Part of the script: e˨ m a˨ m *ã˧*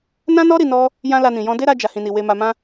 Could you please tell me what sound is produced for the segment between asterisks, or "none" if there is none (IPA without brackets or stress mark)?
ã˧